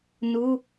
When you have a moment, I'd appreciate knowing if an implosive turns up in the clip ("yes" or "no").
no